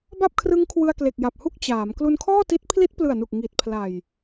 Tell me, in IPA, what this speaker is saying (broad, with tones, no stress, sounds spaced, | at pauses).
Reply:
b a˥˩ p̚ kʰ r ɯ˦˥ ŋ kʰ w ɯ˧ a̯ k l e˨˩ k̚ j a˨˩ p̚ h u˥˩ k̚ t͡ɕ aː˩˦ m k l u˧ n kʰ ɔː˥˩ t i˦˥ t̚ pʰ l i˦˥ t̚ p l ɯ˨˩ a̯ n u˨˩ k̚ ŋ i˨˩ t̚ pʰ l a˨˩ j